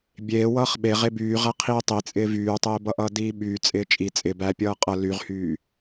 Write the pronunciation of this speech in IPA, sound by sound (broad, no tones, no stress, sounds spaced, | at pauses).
bʲ eː w ʌː χ ɓ e ʁ e b yː ʁ æ qʰ iː tˤ i t͡sʼ ɪː v yː tˤ eː b ʌ ʔ ʌː d iː ɓ yː t͡sʼ ɪː t͡ʃʼ i t͡sʼ ɪ b æ pʲ ʌː qʼ ʌ l y ʁ h yː